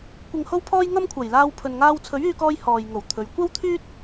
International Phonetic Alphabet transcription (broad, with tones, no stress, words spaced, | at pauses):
kʷɪ˨ŋho˧wpʰɔː˧j ŋɐ˥mkʷʰɐ˨˩j laː˧wpʰɵ˨nŋaː˧w t͡sʰɵ˨˥ɥyː˧kɔː˧j hɔː˨jŋo˨˩w t̪ʰɵ˨˧ɥ kʷɐ˥wt̪ʰyː˥t̚